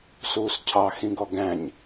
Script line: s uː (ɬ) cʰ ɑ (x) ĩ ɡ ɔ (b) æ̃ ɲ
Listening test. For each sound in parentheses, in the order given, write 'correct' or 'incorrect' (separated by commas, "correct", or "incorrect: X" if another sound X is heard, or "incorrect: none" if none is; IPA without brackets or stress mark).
incorrect: s, correct, incorrect: ɡ